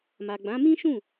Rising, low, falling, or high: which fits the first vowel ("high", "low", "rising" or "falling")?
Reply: low